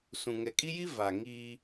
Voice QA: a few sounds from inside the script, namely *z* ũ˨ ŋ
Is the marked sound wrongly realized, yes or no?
yes